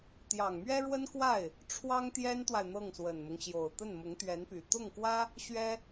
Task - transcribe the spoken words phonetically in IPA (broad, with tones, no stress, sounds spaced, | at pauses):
t̪ j ɑ˨˩ ŋ m ɥ ɛ˥ ɻ w ə˥ n k w a˥˩ ɪ̯ | ʈ͡ʂʰ w ɑ˥ ŋ t̪ j ɛ˥ n t̪ w a˨ ɪ̯ n̪ ɤ˥˩ ŋ s w ə˨˩ n m ʊ˦ ŋ ɕ j o˨˩ ʊ̯ t̪ ə˥˩ n m ʊ˧˥ ŋ t̪ ɥ ɛ˧˥ n p y˨˩ t̪ ʊ˥˩ ŋ k w ä˥ | ɕ ɥ ɛ˥